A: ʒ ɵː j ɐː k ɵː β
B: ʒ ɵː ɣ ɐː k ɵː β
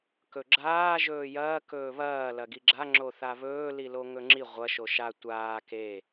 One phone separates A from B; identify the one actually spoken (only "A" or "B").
A